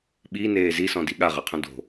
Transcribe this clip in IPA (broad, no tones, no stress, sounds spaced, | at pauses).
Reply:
ɓ i n eː z i s ɔ̃ d i ɠ a ʁ ɜ qʰ õ d o̤